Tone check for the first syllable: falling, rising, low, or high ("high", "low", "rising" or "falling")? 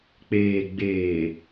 low